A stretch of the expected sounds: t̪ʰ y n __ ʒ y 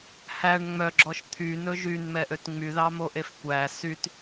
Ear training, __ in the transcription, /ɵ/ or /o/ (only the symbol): ɵ